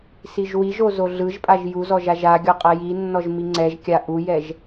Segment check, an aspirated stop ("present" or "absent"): absent